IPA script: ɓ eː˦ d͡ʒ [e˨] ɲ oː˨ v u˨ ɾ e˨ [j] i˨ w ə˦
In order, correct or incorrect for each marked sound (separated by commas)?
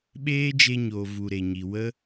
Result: incorrect, incorrect